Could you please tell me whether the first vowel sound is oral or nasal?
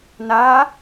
oral